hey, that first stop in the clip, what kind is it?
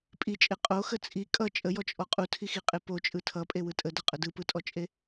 ejective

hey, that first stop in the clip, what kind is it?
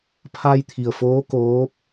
aspirated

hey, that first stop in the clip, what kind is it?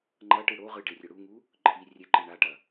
click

